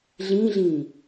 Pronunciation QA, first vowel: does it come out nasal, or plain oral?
nasal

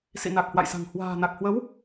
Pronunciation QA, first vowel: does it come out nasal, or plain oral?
oral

